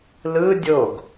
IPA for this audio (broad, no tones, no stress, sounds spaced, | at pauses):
l ɯ dʲ o ɡ